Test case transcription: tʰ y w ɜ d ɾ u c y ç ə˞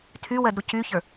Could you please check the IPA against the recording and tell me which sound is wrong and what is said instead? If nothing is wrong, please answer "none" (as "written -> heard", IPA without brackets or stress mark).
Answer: none